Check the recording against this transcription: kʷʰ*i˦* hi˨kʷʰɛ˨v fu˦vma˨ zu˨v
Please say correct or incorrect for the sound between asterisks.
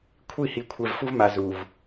incorrect